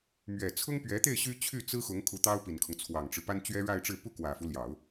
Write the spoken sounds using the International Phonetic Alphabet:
m ɥ ɛ˨˩ t͡sʰ ʊ˥ ŋ p ɥ ɛ˧˥ t̪ e˥˩ ɪ̯ ɕ y˥ t͡ɕʰ y˥˩ t͡s ɹ̩˥ x ʊ˧˥ ŋ kʰ u˧˥ t̪ ɑ˥ ʊ̯ p i˨˩ n kʰ ʊ˦ ŋ t͡sʰ w ɑ˨˩ ŋ ʈ͡ʂ ɻ̩˦ p a˥ n t͡ɕ ɥ ɛ˥ ɻ a˥˧ ɪ̯ ʈ͡ʂ ɻ̩˥˧ p u˥˩ k w ä˨˩ f u˦ l j ɑ˨˩˦ ʊ̯

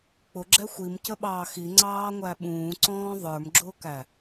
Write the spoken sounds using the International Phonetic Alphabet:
k͡p ʊ ɡ͡ǁ ɛ xʷ i m c ə ɓ ɑː x i ŋ͡ǀ ɑː ŋʷ æ ɓ ũː ǀ ɔ̃ː ðˤ ə˞ m ɡ͡ǁ ʊː k æ

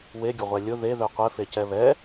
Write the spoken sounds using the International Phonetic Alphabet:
w e ɡʲ ʊ ʁʷ ɛ lʲ ʊ ð e ð œ qʷ ɛ f e c ɛ β ɛ

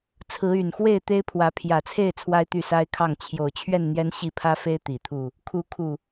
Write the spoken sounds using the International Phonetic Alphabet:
t͡sʰ ɹ̩˨˦ y˨˩ n x w e˥˨ ɪ̯ t̪ e˦ ɪ̯ pʰ w ä˨˦ pʰ j ä˨˩ t͡sʰ e˥˨ ɪ̯ t͡sʰ w a˦ ɪ̯ t̪ y˥˨ s a˦ ɪ̯ kʰ ɑ˥˨ ŋ t͡ɕʰ j o˨˩ ʊ̯ t͡ɕʰ ɥ ɛ˥˨ n n̪ j ɛ˦ n ɕ i˥˨ pʰ ä˦ f e˦ ɪ̯ t̪ i˨˩ t̪ʰ u˥˨ | kʰ u˨˦ kʰ u˨˩

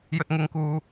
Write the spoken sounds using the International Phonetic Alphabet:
j ɵ˧ t̚ ŋ ɪ˧ ŋ k uː˧

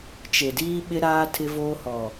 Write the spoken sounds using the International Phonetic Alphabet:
t͡ʃ e˨ d iː˦ ɓ ɪ˦ ɾ aː˦ tʰ ɪ˦ v oː˦ h ɔ˨

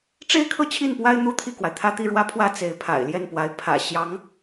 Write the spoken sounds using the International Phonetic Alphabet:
ʈ͡ʂ e˥ ɪ̯ kʰ ɤ˥˧ t͡ɕʰ i˥˩ n p w a˥ ɪ̯ n̪ u˥ t̪ʰ i˥˩ k w a˩ ɪ̯ t̪ʰ ä˥˧ t̪ i˥˩ ɻ w ä˥ pʰ w ä˥˩ t͡s e˧˥ ɪ̯ pʰ a̰˨˩ ɪ̯ l j ɛ˥˩ n p w a˧˥ ɪ̯ pʰ ä̰˨˩ ɕ j ɑ˧˥ ŋ

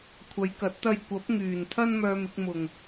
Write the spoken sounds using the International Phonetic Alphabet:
kʷʰ ɐ˨˧ j k ɐ˨˥ t̚ t̪ ɐ˧ j kʷ ɐ˨˥ p̚ ŋ yː˨˩ n t̪ʰ ɐ˥ n m œː˧ m ɪ˧ k̚ m ʊ˨˩ ŋ

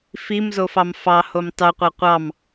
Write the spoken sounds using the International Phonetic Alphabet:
f i m z o f ɑ m f ɑ h o m tˤ y qʷ a qʷ ɑ m

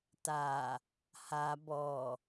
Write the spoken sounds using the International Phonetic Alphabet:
t a | h a b ɔ

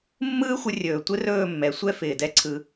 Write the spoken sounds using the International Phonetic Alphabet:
mː ɯː˦ xʷ ɪ˧ rʲ ɵː˨ tʷ ɪ˦ r ɵː˦˨ mː ɛ˨ sʷ ɛ˦ f ɪː˨ d ɛ˦ ǀʰ ɯ˧

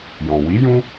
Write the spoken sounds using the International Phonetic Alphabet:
j ɔ̃˨ w i˨˦ j ũ˦

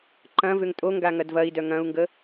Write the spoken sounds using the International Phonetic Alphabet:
ǃ ɐ̃ v ʏ ŋ tʼ o ŋ ɡ a ŋ ɐ d v ɐ i̯ d œ ŋ ɐ̃ u̯ ŋ ɡ ə

